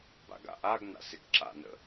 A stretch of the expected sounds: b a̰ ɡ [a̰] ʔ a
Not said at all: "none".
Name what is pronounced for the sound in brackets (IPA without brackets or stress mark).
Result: a̰